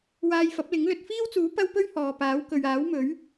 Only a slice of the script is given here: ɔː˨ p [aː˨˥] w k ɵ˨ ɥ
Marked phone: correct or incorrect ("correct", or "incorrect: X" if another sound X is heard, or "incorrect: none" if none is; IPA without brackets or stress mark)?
correct